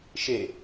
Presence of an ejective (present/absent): absent